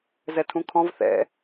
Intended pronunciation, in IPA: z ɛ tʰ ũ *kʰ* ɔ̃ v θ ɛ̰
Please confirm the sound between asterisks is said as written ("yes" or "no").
yes